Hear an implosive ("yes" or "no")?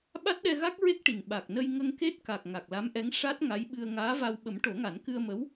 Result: yes